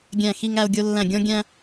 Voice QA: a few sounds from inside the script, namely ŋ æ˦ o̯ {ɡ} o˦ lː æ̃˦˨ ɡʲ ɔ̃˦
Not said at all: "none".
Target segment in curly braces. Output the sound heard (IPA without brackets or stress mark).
ɡʲ